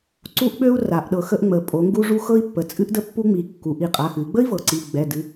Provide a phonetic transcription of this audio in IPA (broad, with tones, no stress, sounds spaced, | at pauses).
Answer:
ǀ u˦ ʔ ɓ ø˦ u̯ r a˩˧ ʔ ɗ ɤ˩˧ x ə˦ ʔ ŋ͡m ə˩˧ pʼ o˩˧ ŋ ɡ u˦ ʐ u˦ x ɤ˦ i̯ pː ə˩˧ t͡sʼ ɨ˦ ʔ d ə˦ pː u˦ ŋ͡m i˩˧ kː u˩˧ ʔ i˩˧˩ qʼ a˩˧˩ x ɨ˩˧ i̯ ɡ͡b ə˦ i̯ v ɤ˩˧ ǀ i˩˧˩ ɡ͡b ɛ˩˧˩ d ɨ˩˧˩